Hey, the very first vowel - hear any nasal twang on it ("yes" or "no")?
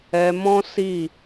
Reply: no